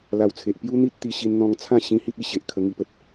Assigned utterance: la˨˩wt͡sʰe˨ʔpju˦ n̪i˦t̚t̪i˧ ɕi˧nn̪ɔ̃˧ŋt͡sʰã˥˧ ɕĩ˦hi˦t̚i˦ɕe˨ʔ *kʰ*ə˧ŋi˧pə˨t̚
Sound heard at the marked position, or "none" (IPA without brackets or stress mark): kʰ